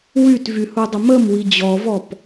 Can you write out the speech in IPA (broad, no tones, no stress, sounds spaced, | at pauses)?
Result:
w y t v y h u dˤ ə m ə m w i d͡ʑ ɔ v ɔ p